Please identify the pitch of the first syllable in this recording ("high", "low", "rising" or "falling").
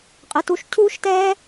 rising